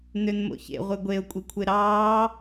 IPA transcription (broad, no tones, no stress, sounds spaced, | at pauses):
n ø n m o̰ ç ḛ ʁʷ e ɡʷ e ʊ̯ kʷʼ i kʷʰ e ɾ ɑː